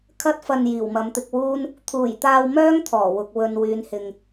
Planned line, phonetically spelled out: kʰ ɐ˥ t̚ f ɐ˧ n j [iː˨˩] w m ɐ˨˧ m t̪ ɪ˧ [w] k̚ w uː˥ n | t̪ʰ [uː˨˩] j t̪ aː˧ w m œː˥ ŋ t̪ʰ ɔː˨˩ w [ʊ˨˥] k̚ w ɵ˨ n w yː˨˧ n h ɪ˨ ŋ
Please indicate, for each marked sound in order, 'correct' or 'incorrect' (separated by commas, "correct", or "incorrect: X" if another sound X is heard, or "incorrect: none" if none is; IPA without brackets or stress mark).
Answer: correct, incorrect: none, correct, incorrect: ʊ˨